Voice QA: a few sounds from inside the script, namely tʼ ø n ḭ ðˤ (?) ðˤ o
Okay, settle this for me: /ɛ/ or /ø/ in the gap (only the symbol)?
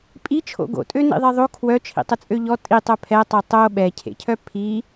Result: ɛ